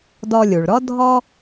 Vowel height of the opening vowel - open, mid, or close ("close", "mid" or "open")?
mid